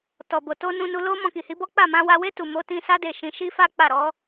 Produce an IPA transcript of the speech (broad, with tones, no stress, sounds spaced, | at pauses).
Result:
t ɔ˨ b o˨ t o˧ n ũ˧ n u˧ l o˦ m ɔ̃˧ k i˨ h i˨˦ b ɔ˦ k͡p a˦˨ m ã˧ w a˧ w e˦ t u˦˨ m o˨˦ t ĩ˧ s a˦ d e˦˨ ʃ ĩ˧ ʃ i˦ f a˦ k͡p a˦˨ ɾ ɔ˨˦